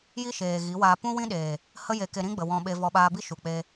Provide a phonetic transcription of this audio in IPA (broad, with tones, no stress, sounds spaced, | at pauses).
j i˦ ʃ eː˨ ɣ i˨˦ w aː˧ p ũ˦ w ĩ˦ ɗ eː˨ | h ə˦ j e˧ k e˧ ɾ ĩ˦ ɡ͡b ə˨ w ɔ̃˧ ɓ e˧ v ɔ˧ ɓ aː˧ b i˦ ʃ u˨ k͡p e˧